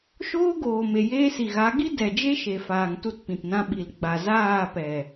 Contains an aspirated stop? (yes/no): no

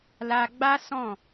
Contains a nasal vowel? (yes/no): yes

